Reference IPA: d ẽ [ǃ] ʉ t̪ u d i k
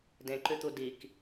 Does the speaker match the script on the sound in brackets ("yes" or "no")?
yes